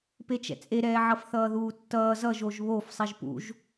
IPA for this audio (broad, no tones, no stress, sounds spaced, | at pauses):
p e t͡ʃ ɛ̰ t͡sʼ e ɾ ɛː ʕ ʌ f θ ʌː ð uː tː ʌː z ʌ ʒ o ʒ β o f sˤ i ʒ p ṵ ʒ